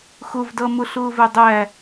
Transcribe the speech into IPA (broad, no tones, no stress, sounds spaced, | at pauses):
x ʊ v d ʌ m ʊ ɬ ʊː v ɛ dˤ æ